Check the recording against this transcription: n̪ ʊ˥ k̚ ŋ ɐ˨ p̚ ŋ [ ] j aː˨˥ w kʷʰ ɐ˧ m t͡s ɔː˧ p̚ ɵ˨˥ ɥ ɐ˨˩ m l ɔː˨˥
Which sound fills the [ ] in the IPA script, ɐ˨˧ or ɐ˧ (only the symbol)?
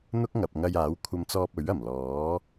ɐ˧